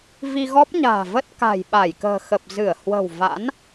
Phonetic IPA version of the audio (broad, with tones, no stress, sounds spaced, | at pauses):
v i˧ ɣ ɔ˦˥ p̚ ɲ a̤ː˨˩ v ə˦˥ t̚ k a̤˨˩ j ɓ a˧˩ j k ə̤ː˨˩ x ə˨˩ p̚ z ɨ˧˩ ə̯ h w ə̤˨˩ w v a̰˧˥ n